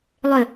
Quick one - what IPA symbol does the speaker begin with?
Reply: lˠ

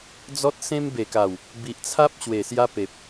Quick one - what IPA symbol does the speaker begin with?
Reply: d͡z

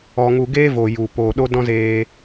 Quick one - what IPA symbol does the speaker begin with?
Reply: ɔ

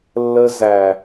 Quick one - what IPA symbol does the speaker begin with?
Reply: lː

